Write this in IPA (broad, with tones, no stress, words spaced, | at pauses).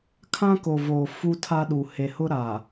kʰã˦ko˨voː˨ fu˦tʰa˦ɗu˨ he˨hʊ˦ɾa˨